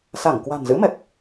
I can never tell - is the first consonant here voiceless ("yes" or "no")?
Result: yes